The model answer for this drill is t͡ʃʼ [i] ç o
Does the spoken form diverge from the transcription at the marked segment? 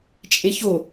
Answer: yes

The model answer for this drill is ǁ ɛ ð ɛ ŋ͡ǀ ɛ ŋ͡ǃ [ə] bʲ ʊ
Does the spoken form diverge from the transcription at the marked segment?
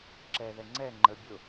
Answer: no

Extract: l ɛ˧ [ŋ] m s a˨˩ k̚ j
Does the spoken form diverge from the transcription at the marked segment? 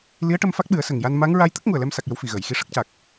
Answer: yes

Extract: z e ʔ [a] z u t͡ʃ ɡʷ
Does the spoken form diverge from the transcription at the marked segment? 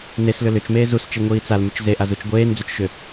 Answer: no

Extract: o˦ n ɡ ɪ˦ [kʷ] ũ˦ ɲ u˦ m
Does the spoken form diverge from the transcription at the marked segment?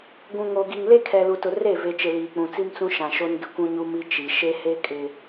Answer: no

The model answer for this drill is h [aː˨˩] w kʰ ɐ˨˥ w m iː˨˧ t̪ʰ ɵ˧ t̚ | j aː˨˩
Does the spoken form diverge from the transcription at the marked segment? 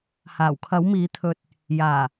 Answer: no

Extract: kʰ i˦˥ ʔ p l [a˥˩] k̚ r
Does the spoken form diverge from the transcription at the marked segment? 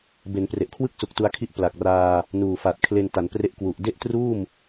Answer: yes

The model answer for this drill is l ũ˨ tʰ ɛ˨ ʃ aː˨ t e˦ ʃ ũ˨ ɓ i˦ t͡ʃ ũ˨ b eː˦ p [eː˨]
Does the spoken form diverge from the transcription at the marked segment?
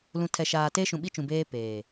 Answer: no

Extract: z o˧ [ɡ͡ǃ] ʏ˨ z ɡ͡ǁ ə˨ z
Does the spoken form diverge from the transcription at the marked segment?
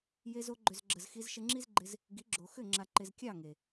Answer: no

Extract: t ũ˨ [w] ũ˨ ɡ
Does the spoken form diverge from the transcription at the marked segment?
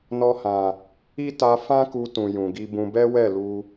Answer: yes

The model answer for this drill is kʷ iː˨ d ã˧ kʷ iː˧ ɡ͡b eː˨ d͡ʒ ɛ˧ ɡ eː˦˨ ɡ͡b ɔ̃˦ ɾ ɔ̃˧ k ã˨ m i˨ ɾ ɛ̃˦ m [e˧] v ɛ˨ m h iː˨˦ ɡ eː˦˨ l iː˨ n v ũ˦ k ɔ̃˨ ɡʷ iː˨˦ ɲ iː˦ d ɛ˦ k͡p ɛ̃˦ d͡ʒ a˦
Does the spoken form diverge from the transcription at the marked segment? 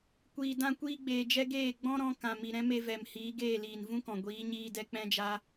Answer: no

